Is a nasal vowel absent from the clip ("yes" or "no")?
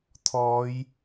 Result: yes